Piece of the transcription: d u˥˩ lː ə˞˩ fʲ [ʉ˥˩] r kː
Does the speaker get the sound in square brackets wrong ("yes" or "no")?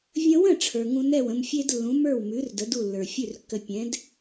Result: no